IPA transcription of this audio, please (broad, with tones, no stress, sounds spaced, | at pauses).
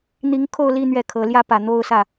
n̪ i˧˥ ŋ kʰ o˥˧ ʊ̯ l i˥˧ n̪ ɥ ɛ˥˩ kʰ ɤ˧˥ l j ä˥ p ä˨˩ n̪ o˥˧ ʊ̯ s ä˥˩